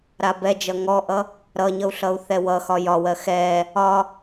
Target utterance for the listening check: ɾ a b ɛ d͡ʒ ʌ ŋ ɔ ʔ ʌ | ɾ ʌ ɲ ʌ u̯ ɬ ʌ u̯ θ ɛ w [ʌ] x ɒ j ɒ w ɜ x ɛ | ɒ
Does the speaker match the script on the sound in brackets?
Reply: yes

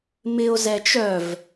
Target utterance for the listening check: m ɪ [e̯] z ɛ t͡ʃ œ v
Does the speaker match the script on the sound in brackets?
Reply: no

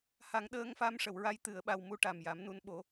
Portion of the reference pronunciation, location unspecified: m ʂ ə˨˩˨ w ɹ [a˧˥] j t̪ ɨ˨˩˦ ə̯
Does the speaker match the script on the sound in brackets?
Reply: yes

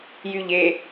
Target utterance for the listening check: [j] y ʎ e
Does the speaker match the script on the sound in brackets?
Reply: yes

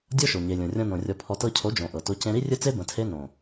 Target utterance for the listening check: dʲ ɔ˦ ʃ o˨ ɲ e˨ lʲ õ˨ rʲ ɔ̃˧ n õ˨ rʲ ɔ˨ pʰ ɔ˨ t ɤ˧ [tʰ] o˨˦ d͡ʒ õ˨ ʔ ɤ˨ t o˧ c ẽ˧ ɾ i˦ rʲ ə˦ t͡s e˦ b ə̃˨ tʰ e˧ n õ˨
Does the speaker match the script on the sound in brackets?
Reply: no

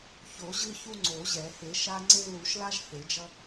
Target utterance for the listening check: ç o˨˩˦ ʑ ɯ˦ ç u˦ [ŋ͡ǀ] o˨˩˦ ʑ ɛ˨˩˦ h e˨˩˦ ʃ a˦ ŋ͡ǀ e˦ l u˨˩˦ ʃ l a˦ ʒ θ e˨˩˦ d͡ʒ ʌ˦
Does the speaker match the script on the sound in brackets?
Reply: yes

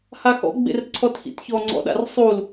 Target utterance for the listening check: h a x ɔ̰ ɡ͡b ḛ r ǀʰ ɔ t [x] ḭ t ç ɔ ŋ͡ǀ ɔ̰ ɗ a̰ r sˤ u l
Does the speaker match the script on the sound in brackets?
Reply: yes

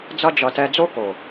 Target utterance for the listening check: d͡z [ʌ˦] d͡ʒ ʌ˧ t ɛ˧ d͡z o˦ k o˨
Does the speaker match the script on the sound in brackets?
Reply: yes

